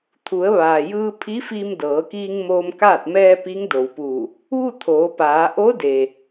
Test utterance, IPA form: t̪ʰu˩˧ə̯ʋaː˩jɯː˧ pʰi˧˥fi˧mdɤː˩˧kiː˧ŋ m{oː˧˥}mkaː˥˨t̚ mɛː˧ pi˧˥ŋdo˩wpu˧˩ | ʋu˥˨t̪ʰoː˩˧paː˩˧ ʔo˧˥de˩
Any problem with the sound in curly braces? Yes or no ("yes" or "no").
yes